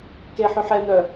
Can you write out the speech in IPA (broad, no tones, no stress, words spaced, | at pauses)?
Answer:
keħʉħ ɛn̪œ